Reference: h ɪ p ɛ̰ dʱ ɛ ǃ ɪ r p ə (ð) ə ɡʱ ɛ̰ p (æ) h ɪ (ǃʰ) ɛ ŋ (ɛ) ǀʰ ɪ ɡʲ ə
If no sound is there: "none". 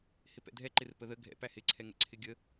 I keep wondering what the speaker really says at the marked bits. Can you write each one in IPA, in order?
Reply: ð, æ, ǀʰ, ɛ̰

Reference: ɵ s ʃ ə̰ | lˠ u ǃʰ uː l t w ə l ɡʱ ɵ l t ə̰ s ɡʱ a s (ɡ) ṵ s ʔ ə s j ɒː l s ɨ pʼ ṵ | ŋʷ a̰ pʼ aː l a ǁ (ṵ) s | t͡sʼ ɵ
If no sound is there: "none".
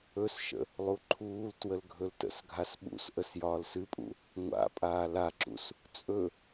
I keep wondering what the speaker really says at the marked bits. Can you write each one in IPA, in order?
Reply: ɓ, ṵ

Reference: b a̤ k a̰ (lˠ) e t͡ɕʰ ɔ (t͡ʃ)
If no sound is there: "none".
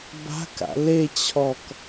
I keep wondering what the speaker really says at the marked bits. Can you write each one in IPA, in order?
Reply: l, k

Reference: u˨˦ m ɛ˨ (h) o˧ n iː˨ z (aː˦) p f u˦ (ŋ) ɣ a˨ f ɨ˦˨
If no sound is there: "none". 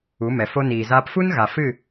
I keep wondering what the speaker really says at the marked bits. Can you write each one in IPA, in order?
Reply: f, aː˧, n

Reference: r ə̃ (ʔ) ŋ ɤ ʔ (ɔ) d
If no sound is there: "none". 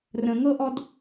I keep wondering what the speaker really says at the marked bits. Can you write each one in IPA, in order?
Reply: none, ɔ

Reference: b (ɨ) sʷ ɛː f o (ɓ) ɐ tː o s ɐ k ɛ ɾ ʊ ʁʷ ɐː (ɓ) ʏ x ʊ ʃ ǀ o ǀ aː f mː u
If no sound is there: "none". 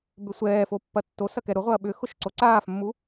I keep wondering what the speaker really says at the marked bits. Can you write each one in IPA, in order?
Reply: ʏ, pː, ɓ

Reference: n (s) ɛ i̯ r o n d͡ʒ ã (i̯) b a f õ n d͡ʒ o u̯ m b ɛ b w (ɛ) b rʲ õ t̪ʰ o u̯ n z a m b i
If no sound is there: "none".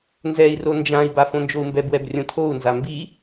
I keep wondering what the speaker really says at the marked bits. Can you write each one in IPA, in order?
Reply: z, i̯, ɛ

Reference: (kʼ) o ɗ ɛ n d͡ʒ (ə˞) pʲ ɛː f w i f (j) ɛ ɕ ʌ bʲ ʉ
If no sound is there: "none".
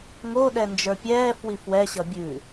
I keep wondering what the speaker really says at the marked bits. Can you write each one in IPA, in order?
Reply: ŋ, ə˞, w

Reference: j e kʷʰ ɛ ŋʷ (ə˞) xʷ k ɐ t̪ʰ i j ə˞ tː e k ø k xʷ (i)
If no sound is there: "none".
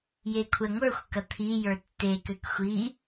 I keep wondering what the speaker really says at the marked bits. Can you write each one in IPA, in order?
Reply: ə˞, i

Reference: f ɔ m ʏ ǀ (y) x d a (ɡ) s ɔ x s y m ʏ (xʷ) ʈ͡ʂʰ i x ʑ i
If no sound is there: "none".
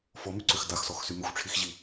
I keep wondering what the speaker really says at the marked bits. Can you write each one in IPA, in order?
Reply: ʏ, x, xʷ

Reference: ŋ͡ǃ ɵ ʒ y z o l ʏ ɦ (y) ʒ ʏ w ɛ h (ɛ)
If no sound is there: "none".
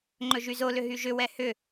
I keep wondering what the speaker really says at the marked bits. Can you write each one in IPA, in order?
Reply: y, ʏ

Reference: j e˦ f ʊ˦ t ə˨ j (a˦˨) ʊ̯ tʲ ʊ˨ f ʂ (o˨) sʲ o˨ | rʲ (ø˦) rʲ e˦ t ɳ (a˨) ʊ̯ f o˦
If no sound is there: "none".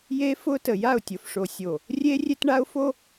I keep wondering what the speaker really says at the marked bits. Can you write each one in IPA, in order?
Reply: a˦˨, o˨, e˦, a˦

